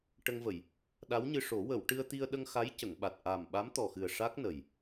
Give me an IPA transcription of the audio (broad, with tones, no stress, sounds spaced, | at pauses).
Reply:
ʈ ə˧ ŋ v ə˨˩˨ j | ɗ a˧˥ w ɲ ɨ˧ ʂ o˨˩˦ w ə˨˩˨ w ʈ ɨ˧ ə̯ t̪ i˧ ə̯ ɗ ə˧ ŋ x a˧˥ j c ə˨˩˨ ŋ ɓ a˨˩ t̚ ʔ a˨˩ m ɓ a˧˥ m t̪ ɔ˨˩ x ɨ˨˩ ə̯ ʂ a˦˥ k̚ n ə˨˩ j